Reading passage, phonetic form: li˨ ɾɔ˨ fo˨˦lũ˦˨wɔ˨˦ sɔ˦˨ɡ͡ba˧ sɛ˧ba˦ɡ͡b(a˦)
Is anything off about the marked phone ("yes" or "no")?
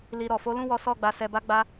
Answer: no